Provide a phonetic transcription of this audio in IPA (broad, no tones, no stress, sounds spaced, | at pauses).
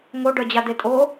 ŋ o ɖ œ d͡ʑ a d̪ e tʼ o